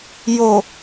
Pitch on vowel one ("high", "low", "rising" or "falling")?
low